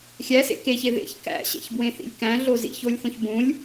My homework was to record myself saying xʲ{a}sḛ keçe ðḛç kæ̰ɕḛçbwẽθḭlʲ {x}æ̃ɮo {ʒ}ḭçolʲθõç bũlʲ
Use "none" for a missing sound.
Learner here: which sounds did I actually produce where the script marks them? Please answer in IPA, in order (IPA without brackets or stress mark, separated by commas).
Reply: æ, k, z